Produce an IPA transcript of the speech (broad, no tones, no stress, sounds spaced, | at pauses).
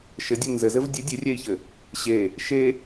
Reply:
ʃ ɘ dʲ ɨ n z ɘ z ɘ v dʲ ɨ dʲ ɨ rʲ ɛ i̯ ç ɘ | ɕ e | ʃ e